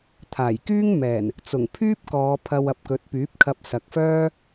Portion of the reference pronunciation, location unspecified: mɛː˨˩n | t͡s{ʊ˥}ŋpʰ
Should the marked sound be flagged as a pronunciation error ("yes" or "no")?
yes